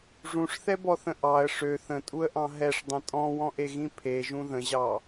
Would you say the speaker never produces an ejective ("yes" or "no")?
no